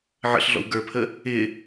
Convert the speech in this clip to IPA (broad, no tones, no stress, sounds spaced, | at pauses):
ʕ ə̰ ɬ ɮ ɔ̰ w ɡ ə˞ pʰ ə | ɪ